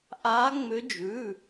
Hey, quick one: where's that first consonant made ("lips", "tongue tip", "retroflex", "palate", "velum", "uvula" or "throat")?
throat